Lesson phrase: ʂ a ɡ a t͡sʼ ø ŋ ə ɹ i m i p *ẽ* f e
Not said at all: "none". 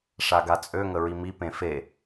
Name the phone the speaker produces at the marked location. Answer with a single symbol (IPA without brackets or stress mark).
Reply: ẽ